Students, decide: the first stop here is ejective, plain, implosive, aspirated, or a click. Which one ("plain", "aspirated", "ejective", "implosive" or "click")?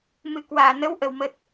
plain